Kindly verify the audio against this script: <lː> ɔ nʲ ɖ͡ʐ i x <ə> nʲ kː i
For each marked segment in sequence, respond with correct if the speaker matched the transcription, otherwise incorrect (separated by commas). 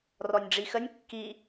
incorrect, correct